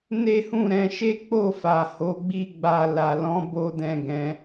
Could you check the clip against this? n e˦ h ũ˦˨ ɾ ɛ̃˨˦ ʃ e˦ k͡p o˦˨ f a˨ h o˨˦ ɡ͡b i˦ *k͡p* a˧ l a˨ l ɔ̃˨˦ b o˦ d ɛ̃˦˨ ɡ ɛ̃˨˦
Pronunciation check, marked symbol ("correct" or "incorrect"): incorrect